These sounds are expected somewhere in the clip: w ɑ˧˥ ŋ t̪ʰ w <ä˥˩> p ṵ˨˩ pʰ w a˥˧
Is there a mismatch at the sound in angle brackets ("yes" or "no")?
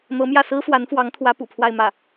yes